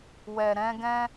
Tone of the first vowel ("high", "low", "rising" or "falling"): low